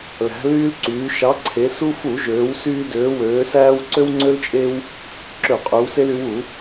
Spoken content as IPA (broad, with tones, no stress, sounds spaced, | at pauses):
l æ̤˩˧ l yː˧ l ǀ yː˩˧ ʃ ɑ˩˧ ǀʰ e˩˧ s u˧ f u˧˩˧ ʒ øː˩˧ w s yː˧ d øː˩˧ w øː˩˧ s æː˧ w ǀ ø˧ w ŋ͡ǀ ø˧ l t͡ʃʼ e˧ w | ǁ ø˧˩˧ qʼ y˩˧ w s e˧ l y˩˧ w u˧˩˧